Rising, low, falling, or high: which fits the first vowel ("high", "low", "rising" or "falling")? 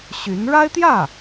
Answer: rising